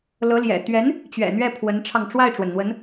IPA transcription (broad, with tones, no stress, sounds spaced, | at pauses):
l ɤ˧˥ l j ɛ̰˨˩ t̪ ɥ ɛ˧˥ n | t͡ɕ ɥ ɛ̰˨˩ n̪ ɥ ɛ˥˩ pʰ w ə˧˥ n ʈ͡ʂʰ ɑ˧ ŋ ʈ͡ʂ w a˥˩ ɪ̯ ʈ͡ʂ w ə˩ n n̪ w ə˧˥ n